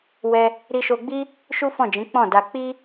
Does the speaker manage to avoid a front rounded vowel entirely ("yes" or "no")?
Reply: yes